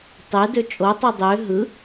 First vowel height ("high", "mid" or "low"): mid